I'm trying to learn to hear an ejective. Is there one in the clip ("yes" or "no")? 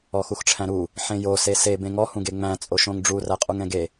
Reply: yes